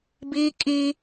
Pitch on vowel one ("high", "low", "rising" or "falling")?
high